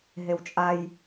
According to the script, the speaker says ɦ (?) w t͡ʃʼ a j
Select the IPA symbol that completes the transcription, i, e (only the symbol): e